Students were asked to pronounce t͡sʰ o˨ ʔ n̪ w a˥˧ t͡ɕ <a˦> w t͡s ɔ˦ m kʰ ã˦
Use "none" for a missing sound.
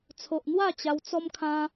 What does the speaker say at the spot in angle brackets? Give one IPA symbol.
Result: a˧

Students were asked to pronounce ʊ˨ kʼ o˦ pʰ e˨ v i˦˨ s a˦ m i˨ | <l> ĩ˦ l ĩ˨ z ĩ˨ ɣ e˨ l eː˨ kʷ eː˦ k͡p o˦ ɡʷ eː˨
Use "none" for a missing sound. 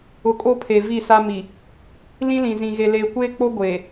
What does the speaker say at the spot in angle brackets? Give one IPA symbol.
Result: l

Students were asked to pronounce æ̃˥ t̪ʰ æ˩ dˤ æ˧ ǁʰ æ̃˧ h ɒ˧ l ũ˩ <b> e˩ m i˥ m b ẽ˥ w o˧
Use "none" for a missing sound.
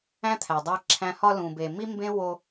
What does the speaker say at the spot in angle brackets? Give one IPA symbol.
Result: b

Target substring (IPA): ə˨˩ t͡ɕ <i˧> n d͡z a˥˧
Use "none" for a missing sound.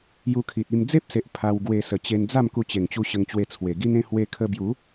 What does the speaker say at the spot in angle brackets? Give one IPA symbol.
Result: e˧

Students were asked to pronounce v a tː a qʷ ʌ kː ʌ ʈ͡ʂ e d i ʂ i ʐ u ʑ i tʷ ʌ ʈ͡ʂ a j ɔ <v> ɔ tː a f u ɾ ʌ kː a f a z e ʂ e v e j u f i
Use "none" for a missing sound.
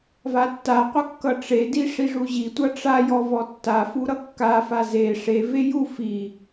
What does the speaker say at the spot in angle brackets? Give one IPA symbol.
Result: v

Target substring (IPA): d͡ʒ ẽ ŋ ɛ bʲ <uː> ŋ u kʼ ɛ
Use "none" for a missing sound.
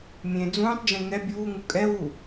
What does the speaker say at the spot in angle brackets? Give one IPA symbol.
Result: uː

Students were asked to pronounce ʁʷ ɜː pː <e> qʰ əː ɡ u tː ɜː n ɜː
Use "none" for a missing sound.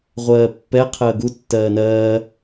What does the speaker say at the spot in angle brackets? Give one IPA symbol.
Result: ɛ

